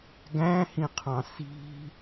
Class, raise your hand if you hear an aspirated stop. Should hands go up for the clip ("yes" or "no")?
yes